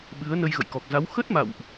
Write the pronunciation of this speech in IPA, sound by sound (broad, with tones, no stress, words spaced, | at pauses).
ɓɨ˨˦ə̯ nə˧jɣə̰˧˨jkɔ˨˩k̚za˨˦w xə˦˥t̚ma̰˧˨wʔ